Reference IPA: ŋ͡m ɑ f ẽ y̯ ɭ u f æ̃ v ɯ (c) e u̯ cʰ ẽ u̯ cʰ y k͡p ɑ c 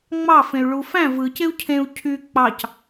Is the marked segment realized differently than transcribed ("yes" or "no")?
no